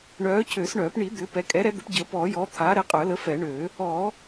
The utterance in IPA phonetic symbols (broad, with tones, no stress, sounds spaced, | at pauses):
ɳ œː˨˥ cʰ øː˨˩˦ s ɳ œː˨˩˦ p ɳ i˨˩˦ d̪ ʏː˨˥ p ɛ˨˥ kʼ ɛ˨˥ ɾ ɛ˨˥ d̪ ə˨˥ p ɟ əː˨˩˦ p ɔː˨˩˦ j ɔː˨˥ t̪ʰ aː˨˥ ɾ ɛ˨˥ qʼ œː˨˩˦ l ə˨˥ f ɛ˨˩˦ ɳ ø˨˩˦ | ɔ˨˩˦